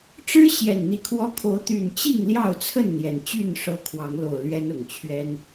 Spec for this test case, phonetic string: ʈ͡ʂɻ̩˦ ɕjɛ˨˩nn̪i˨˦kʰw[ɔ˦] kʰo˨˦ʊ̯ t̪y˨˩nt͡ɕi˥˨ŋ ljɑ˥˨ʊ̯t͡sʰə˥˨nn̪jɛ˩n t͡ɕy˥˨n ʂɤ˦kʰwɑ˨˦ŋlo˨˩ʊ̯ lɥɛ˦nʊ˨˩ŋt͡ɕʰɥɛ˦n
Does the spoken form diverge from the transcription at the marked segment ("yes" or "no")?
no